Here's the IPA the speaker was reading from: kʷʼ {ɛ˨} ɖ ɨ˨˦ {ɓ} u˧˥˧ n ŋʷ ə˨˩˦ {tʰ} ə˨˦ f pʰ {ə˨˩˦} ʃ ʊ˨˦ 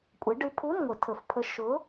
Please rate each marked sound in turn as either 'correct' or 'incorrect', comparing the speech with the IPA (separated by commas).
incorrect, incorrect, correct, incorrect